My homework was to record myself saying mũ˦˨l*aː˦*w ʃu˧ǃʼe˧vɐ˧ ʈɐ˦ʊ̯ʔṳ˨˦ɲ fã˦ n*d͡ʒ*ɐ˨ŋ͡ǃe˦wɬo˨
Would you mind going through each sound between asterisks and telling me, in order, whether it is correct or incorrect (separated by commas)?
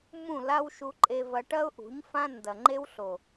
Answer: incorrect, incorrect